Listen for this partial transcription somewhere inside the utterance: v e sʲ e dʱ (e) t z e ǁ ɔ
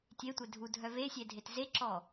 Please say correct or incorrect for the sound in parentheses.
correct